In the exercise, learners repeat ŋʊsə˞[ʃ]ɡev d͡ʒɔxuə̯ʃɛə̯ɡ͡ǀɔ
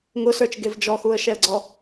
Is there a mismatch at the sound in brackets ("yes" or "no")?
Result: yes